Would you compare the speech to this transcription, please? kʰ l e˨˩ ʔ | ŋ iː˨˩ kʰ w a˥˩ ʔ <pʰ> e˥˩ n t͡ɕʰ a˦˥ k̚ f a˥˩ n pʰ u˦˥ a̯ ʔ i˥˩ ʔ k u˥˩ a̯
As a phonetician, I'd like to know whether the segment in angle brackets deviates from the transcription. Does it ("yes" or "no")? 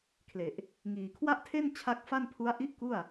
yes